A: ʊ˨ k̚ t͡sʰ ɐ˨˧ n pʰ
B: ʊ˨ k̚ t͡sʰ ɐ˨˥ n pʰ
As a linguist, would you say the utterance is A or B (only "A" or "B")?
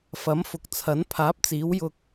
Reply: B